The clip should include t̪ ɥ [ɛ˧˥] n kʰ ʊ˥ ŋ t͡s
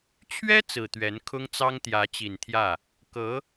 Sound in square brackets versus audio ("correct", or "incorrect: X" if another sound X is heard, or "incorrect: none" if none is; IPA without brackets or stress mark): correct